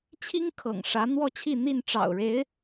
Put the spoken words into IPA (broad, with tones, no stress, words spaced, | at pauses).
t͡ɕʰi˥ŋ kʰɤ̰˨˩ŋʂä˧˥ n̪wɔ˥˧t͡ɕʰi˥˧ n̪i˥˩nʈ͡ʂɑ̰˨˩ʊ̯ɻe˧˥ɪ̯